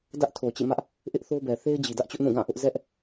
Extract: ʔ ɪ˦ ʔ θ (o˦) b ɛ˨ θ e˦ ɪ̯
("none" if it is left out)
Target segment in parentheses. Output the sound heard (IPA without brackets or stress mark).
o˦